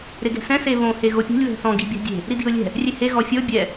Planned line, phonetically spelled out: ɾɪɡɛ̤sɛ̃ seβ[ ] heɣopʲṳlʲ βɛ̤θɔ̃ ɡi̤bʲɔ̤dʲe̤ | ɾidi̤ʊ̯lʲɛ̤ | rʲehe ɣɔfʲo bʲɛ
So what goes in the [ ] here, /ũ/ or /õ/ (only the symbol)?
õ